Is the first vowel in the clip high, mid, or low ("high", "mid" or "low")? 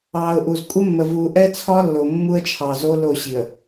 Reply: low